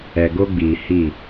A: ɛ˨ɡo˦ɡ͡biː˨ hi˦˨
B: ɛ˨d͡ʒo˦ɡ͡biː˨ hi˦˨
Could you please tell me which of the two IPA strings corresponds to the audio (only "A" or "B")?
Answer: A